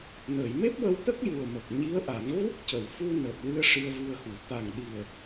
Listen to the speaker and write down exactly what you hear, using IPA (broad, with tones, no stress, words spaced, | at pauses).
nəː˨˩˨jme˦˥p̚wə˧wt̪ə˦˥k̚ ju˨˩ə̯mə˨˩k̚ɲi˧˥ə̯ʔa˨˩˦ŋ ɣu˦˥k̚cə˨˩˨wfu˧ nəː˨˩t̚wɨ˧ə̯ ʂɨ˧ə̯vɨ˧ə̯xu˨˩˦ t̪a˨˩ŋ ɗi˨˩ə̯